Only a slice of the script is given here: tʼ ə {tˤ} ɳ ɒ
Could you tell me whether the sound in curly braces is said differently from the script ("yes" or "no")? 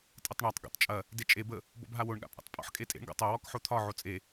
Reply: no